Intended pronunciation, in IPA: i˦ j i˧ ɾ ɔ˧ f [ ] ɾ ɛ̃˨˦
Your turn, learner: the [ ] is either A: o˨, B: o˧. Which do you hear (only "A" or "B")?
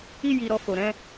A